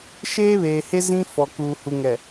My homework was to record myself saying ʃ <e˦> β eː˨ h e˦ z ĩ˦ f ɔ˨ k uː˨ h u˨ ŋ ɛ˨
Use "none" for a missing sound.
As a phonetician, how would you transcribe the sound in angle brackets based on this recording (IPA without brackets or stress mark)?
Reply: eː˦